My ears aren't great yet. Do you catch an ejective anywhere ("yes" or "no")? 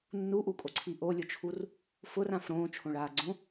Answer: yes